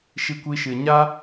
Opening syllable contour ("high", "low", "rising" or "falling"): high